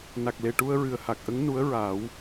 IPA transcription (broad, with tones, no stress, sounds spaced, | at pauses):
n a˨˩ k̚ l e˨˩ ʈ u˧ ə̯ ɹ ɨ˨˩ ə̯ h a˨˩ k̚ ʔ ə˧˥ ŋ n u˧˥ ə̯ ɹ a˨˩˦ w